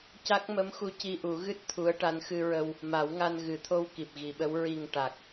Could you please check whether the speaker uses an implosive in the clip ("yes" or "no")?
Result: yes